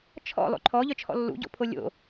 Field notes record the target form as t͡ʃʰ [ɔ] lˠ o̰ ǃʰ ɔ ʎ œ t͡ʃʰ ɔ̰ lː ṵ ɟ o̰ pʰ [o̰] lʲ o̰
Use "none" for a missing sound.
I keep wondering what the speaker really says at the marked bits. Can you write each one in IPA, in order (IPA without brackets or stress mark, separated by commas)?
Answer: ɔ̰, o